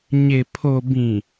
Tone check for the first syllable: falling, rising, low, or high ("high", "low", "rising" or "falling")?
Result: low